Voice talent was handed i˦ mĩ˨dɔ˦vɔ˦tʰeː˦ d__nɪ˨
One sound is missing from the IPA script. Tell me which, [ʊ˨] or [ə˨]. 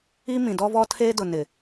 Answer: ʊ˨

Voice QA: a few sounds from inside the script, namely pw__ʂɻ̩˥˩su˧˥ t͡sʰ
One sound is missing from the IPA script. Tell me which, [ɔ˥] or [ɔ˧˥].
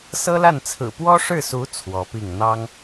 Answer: ɔ˥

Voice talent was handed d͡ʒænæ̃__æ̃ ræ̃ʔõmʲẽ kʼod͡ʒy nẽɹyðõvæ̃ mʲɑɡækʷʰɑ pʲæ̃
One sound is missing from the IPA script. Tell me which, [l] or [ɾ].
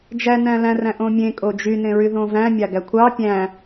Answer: l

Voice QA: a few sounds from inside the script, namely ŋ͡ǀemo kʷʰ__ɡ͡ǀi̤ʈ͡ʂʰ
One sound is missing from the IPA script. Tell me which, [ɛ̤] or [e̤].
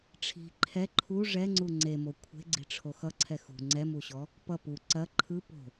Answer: e̤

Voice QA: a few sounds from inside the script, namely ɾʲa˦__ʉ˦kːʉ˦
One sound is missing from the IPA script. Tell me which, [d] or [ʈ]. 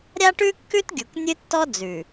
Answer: ʈ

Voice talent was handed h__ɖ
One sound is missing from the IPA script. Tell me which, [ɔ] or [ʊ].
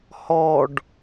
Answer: ɔ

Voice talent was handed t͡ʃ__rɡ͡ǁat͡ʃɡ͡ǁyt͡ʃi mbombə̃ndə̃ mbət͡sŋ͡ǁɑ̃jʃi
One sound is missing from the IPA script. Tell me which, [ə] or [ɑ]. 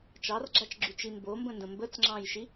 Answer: ɑ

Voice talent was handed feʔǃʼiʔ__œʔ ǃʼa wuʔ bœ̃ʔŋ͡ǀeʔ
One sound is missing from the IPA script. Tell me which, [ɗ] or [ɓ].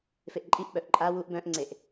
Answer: ɓ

